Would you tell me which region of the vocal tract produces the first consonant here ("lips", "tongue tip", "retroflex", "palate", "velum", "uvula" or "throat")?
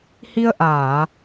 throat